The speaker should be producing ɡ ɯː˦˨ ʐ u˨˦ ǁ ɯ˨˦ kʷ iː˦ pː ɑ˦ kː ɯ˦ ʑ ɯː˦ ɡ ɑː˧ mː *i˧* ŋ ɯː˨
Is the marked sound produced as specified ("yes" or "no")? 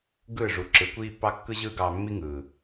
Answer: no